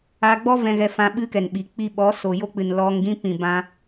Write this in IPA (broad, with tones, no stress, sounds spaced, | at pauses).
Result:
a˧ ɡ͡b ɔ˦ v ɛ̃˧ ɣ ɛ˧ f ã˧ ɓ ɨ˦ k ɛ˨ n ɓ i˨ k͡p i˧ ɓ ɔ˨˦ s o˨ j o˦ k͡p ɨ˨ n l ɔ˧ ŋ ɡ ĩ˦ p ĩ˨ b ã˧